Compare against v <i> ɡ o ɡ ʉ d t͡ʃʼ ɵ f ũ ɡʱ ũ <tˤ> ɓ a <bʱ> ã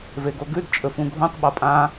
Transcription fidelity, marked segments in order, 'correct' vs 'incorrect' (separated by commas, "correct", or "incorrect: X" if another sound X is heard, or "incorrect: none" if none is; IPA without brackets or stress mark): incorrect: e, correct, incorrect: pʼ